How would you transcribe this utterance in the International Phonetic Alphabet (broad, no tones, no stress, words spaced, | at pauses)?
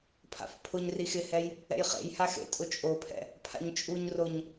pʰa̰fpʰʊɲri xɪhɛj | ɛ̰jχḛjha xḛtʼʊt͡ʃʼopʰɛ̰ | pʰa̰ɲt͡ʃʼuɲroɲ